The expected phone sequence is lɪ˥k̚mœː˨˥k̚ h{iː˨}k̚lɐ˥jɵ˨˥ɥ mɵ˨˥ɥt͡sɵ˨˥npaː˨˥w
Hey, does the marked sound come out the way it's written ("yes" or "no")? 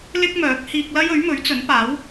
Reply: no